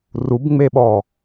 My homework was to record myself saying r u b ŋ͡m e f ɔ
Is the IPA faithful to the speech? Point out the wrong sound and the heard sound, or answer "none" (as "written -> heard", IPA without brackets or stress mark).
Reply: f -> ɓ